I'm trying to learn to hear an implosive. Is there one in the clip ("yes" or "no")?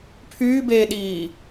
yes